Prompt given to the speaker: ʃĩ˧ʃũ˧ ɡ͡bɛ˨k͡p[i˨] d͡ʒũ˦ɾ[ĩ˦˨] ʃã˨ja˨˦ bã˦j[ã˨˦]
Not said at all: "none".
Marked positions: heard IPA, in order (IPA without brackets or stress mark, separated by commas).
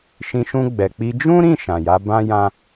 i˧, ĩ˦˨, ã˦